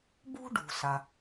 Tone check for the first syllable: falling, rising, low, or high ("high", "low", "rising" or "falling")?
high